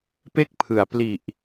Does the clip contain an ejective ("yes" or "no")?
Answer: no